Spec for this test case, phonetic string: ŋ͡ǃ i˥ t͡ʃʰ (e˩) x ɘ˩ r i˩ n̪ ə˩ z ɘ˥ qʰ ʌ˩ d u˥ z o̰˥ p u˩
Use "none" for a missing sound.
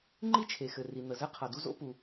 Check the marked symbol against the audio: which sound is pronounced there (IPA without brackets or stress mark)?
e˩